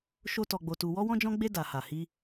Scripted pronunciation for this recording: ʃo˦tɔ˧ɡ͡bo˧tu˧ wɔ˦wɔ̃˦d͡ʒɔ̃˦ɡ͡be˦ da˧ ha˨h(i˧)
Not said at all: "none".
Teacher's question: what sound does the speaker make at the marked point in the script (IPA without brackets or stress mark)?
i˧